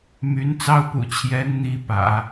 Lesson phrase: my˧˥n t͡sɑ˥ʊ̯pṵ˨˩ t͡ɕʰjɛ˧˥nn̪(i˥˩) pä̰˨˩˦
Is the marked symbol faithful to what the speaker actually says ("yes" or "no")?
no